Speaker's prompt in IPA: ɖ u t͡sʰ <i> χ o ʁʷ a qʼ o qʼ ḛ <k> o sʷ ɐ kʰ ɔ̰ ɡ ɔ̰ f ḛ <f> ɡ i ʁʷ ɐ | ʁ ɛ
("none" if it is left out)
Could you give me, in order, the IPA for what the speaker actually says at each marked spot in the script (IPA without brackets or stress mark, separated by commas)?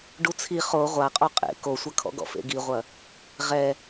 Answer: i, k, none